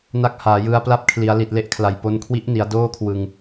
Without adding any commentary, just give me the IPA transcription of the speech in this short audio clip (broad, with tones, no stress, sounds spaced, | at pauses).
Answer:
n a˦˥ k̚ h aː˩˦ j ɯ˧ a̯ p l a˦˥ p̚ kʰ l i˩˦ a̯ l i˨˩ t̚ l e˦˥ ʔ kʰ l a˨˩ j p o˧ n kʰ w i˦˥ ʔ n i˩˦ a̯ d oː˥˩ kʰ w ɯ˧ ŋ